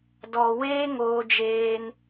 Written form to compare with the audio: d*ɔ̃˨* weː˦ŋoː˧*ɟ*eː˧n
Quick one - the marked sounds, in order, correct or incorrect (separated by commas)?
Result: incorrect, incorrect